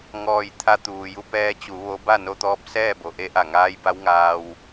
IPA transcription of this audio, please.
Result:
ŋ ɔː˧˩ j t̪ʰ a˧ t̪ uː˩ j u˧ p ɛː˧ t͡ɕ u˩˧ ʋ o˧˥ b a˥˨ n o˧ t̪ ɔː˧˥ p̚ s ɛː˥˨ b o˩ ʔ e˧˥ ʔ a˧˩ ŋ aː˧˥ j b a˧˥ w ŋ aː˧ w

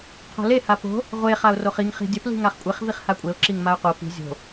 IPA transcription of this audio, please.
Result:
qʰ o̤ l e h a p o̤ | ʁʷ e χ a ʊ̯ r o χ i ŋ χ i̤ dʲ ɐ p l i̤ ŋ a χ kʷʼ e χ v i χ h a kʷʼ e ʊ̯ ǁ i ŋ m a ʊ̯ q o p i̤ zʲ o̤

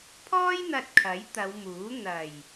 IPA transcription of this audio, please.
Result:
pʰ ɔː˥ j n̪ ɐ˧ t̚ kʰ ɐ˨˥ j t̪ ɐ˨˧ w m uː˨˥ n̪ ɐ˨˩ j

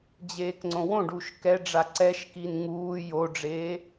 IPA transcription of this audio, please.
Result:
d͡ʑ eː k ŋ͡ǀ õ w õ ɖ u ʃ k ɛ ɖ͡ʐ a ǀ ɛ ʃ k i n ŋ uː j o ɖ͡ʐ eː

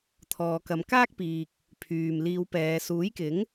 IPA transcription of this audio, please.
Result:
t̪ʰ ɔː˨ k ɐ˨˧ m k aː˥ k̚ p iː˨ k̚ | pʰ yː˨ m l iː˧ w p ɛː˨˧ s uː˨˥ j k ɪ˨˥ ŋ

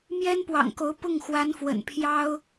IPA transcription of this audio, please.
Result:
m j ɛ˥ n p w ɑ̰˨˩ ŋ k o˧˥ ʊ̯ p ʊ˥˩ ŋ x w a˧˥ n f w ə̰˨˩ n pʰ j ɑ˥ ʊ̯

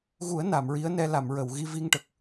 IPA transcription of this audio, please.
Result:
ɣ u˨˩˦ ə̯ n a˨˩˨ m ɹ i˧˥ ə̯ n ɛ˧ l a˨˩˨ m ɹ ə˨˩˨ w ɣ i˧ v i˧ ŋ ʈ ə˨˩ k̚

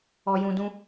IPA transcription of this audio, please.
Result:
ɔ˧ j ũ˧ d ũ˦

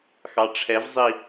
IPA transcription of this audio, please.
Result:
x ɑ ʈ͡ʂʰ ɛ v zˤ i

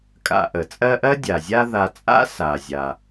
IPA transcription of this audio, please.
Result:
kʼ a̰˨ ʔ ə˩ t͡sʼ ɜ˦ ʔ ɜ˥ dʲ a˩ zʲ a˦ ð a˨ t͡sʼ a̰˥ s a˩ zʲ a˩

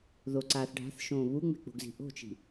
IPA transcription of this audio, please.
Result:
ð o ǀ aː θ ɖʱ a̤ θ ʃ õː β u ŋ͡m e̤ k͡p o̤ ɡ z i̤ ʔ o̤ t͡ʃ i̤

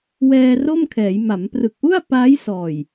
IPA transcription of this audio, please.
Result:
w ɛː˧ r o˥˩ m kʰ ɛː˩˦ j m a˩˦ m p r ɯ˨˩ k̚ ʔ u˥˩ a̯ p aː˦˥ j s ɔː˨˩ j

